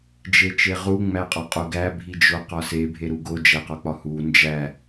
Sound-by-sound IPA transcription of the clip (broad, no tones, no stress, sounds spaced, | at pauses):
d͡ʒ e t͡ʃ e ʁ u ŋ͡m æ qʼ ɒ qʼ o ɡ æ bʱ i d͡ʒ o q ɒ s e bʱ e ɾ u ɡ o d͡ʒ æ q ɒ k͡p ɒ h u n d͡ʒ æ